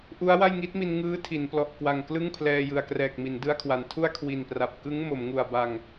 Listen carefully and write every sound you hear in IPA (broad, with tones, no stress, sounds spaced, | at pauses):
ʔ u˦˥ a̯ w a˥˩ j ŋ i˦˥ t̚ m i˧ n ŋ ɯː˦˥ tʰ i˩˦ n p l ɔ˨˩ ʔ k w a˨˩ ŋ k l ɯ˥˩ ŋ pʰ l ɛː˧ j ɯ˨˩ a̯ k r ɛː˨˩ k̚ m i˩˦ n d ɯ˧ a̯ kʰ w a˩˦ n tʰ u˥˩ a̯ kʰ w i˨˩ n p r a˨˩ p̚ k ɯ˦˥ ŋ m o˩˦ m ŋ u˨˩ a̯ b a˨˩ ŋ